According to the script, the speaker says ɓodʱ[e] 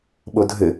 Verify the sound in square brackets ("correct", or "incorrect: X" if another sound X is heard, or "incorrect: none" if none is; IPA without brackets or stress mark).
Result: incorrect: ɘ